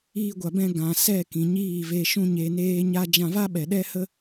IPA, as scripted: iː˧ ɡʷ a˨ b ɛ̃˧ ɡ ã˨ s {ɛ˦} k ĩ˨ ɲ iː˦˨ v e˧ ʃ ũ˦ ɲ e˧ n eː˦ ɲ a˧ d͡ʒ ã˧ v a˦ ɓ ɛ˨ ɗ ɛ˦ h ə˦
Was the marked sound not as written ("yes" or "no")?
yes